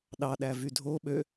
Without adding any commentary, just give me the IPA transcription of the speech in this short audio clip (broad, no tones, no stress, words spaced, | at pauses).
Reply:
ɗɑɗæ vydʱo ɓø